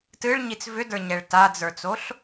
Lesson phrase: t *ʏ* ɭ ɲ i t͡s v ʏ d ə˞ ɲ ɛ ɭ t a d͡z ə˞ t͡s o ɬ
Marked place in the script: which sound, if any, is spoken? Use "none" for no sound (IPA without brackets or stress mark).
ɨ